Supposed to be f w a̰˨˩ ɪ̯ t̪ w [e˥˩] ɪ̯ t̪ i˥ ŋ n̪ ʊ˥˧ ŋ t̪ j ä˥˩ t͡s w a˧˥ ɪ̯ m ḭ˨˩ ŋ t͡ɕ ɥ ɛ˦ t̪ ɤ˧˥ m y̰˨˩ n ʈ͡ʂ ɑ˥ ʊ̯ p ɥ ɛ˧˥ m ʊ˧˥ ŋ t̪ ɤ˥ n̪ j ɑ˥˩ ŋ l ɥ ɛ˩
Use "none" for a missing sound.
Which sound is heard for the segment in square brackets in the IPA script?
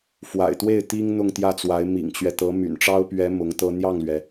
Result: e˥˩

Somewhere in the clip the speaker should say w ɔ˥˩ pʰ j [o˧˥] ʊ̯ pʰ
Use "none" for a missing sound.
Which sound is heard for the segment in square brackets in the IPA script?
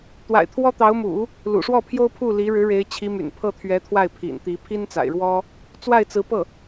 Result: o˥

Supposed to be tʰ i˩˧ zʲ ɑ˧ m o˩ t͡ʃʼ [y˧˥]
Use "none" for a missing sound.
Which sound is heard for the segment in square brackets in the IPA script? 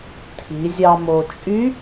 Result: y˧˥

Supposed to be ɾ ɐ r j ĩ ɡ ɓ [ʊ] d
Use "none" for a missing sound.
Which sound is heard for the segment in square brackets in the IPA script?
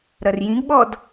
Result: ɔ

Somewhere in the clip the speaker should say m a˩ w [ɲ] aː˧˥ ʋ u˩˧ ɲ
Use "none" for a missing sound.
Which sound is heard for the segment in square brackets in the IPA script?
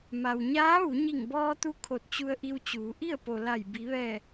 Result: ɲ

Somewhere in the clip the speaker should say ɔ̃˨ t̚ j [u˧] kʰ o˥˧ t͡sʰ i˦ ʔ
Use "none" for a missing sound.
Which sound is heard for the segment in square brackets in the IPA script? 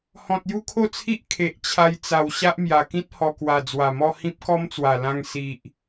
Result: u˥˧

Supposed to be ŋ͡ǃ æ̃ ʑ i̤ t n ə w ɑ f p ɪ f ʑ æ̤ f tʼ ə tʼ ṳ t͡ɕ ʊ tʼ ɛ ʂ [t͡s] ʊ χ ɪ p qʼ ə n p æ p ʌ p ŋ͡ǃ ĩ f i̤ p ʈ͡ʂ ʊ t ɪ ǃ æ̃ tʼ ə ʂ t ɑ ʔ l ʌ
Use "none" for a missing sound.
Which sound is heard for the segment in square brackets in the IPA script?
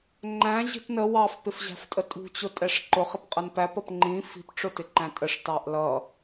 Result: ǃ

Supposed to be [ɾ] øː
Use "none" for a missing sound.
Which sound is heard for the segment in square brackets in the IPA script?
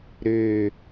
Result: ɾ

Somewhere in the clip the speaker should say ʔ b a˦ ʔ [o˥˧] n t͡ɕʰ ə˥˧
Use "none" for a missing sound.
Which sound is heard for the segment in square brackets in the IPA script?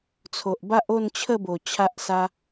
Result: o˥˧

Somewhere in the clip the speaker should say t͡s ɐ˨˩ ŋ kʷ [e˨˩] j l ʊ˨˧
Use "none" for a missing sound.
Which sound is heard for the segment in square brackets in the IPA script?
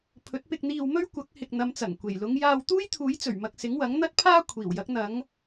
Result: e˨˩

